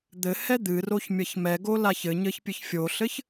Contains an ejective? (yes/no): no